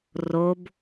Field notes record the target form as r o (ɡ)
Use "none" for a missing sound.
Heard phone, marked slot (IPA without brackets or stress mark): b